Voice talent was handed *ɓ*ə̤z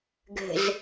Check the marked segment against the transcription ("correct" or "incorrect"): incorrect